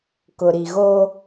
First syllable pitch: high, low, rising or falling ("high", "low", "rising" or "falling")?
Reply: low